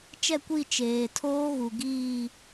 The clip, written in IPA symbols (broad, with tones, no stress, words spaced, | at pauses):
t͡ʃɛ˦˨kʷi˦˨ t͡ʃeː˨tʰoː˦ɣu˨ ɡiː˦˨